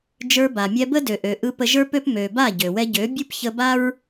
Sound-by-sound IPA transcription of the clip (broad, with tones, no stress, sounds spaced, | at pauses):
d͡ʒ ə˞˧ b a˨ mʲ ɛ˧ b ə˦ d ø˨ ʔ ø˨ ʔ ɯ˧ p ə˧ ʒ ə˞˦ p ø˦ p m ø˨ b a˦˨ ɟ ø˨ w ɛ˧ ɟ ø˨˦ bʲ ɯ˦ p ç ə˧ b a˦ ɹ